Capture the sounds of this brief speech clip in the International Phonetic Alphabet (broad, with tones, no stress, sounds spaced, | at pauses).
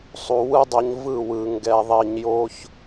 sˤ u˨ w ɯ˦ dˤ ʌ˧ ɲ v ɯ˦˨ w ɯ˨ ŋ ɡ ɛ˨ ðˤ i˨ ɲ j o˦ ç